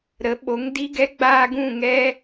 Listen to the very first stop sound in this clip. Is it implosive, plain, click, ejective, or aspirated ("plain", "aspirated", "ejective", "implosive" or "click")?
implosive